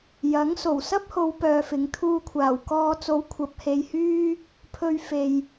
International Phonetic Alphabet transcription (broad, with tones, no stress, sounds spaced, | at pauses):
j ɐ˨˥ ŋ s o˨˩ w s ɐ˥ p̚ h o˨˧ w p œː˧ f ɪ˨˥ ŋ t̪ʰ uː˨ kʷʰ aː˨˩ w k ɔː˨ t͡s o˨˥ w kʷʰ ɐ˨˥ p̚ h e˧ j h yː˥ | pʰ ɵ˨ ɥ f e˨ j